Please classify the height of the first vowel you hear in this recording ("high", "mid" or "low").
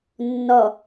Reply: mid